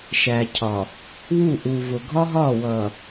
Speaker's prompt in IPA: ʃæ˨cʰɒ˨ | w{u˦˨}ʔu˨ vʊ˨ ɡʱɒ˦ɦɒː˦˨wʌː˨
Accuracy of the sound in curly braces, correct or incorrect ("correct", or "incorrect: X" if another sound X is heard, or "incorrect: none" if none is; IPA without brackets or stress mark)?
correct